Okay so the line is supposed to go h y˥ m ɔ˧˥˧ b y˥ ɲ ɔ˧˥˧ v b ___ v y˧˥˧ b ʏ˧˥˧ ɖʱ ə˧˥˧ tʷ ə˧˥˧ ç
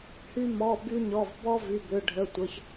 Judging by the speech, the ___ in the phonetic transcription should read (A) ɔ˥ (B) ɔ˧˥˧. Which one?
A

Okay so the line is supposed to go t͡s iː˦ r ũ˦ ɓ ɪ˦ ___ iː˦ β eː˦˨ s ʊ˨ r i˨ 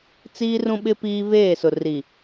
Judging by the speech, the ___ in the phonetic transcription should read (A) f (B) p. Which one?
B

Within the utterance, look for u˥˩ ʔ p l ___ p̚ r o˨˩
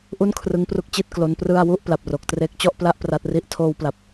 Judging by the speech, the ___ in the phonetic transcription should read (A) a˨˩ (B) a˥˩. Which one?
A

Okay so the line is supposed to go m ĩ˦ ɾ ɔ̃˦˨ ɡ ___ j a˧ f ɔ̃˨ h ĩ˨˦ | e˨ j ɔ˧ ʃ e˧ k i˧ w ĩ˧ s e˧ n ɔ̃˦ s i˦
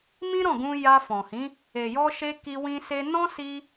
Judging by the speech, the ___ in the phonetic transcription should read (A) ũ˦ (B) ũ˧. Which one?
B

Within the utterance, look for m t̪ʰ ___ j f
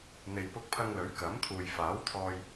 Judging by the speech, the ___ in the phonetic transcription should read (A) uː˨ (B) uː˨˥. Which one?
A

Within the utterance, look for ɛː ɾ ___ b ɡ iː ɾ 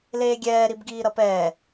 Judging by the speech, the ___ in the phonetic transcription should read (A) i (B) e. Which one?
A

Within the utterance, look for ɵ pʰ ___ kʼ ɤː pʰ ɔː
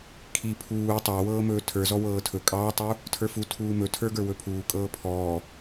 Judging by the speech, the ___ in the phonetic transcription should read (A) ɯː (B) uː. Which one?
B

